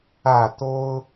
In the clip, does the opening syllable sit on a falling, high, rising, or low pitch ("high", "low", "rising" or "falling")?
falling